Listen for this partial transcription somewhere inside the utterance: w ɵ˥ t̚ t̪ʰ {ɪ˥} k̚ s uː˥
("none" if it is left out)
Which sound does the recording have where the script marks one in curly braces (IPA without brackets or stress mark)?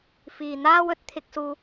ɪ˥